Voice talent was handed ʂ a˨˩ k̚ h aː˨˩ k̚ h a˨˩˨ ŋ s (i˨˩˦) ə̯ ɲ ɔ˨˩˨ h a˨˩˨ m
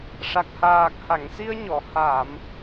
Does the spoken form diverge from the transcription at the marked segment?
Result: yes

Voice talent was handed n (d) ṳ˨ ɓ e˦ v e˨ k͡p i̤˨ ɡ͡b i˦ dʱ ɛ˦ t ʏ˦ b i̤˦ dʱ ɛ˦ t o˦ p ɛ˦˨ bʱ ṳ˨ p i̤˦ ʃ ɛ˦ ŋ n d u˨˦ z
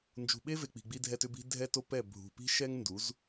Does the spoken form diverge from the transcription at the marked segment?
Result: yes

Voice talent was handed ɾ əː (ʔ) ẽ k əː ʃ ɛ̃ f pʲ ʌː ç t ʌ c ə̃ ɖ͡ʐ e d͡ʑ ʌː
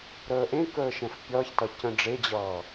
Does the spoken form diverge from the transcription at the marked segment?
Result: no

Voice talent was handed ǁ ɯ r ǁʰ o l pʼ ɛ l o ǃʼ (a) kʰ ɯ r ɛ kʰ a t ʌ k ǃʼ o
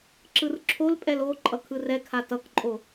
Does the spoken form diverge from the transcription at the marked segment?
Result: yes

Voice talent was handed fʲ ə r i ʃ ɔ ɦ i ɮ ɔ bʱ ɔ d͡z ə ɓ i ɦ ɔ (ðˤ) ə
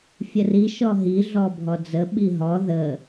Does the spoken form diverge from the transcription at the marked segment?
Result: yes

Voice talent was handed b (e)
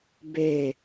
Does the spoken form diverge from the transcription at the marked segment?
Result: no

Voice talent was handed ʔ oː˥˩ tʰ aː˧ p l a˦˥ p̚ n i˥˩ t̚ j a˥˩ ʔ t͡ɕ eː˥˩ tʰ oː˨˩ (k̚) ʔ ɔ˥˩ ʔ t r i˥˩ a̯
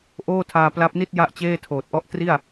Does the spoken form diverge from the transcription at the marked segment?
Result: yes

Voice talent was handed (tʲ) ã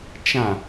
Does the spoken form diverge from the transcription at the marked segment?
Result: yes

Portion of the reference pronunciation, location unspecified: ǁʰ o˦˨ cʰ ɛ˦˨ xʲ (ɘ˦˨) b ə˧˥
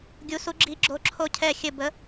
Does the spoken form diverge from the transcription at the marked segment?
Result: no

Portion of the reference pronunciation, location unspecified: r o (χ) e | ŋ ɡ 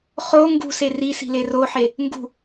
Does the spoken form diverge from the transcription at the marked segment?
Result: yes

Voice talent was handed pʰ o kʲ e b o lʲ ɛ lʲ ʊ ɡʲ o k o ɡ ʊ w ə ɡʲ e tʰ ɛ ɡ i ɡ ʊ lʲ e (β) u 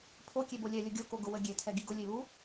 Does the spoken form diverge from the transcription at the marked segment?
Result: no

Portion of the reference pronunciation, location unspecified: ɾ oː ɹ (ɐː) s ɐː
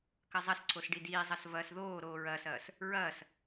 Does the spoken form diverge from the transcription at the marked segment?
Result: no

